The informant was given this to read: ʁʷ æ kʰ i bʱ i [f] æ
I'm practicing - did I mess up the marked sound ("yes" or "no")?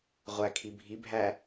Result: yes